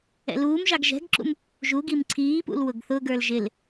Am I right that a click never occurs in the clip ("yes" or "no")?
no